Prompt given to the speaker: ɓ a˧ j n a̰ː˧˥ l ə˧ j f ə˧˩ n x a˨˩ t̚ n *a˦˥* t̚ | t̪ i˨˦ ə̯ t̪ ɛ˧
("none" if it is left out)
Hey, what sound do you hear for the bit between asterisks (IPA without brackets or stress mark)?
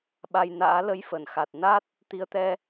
a˦˥